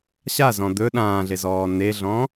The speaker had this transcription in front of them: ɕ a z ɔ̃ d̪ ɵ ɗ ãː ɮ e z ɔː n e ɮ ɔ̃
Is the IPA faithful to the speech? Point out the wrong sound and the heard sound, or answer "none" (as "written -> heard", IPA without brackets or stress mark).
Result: none